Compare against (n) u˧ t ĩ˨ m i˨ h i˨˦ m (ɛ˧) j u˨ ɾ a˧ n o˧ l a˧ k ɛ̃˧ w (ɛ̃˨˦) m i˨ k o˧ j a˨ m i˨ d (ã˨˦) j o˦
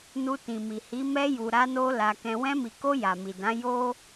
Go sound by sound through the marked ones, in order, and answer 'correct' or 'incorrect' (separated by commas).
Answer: correct, correct, incorrect, correct